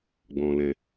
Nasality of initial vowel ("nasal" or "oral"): nasal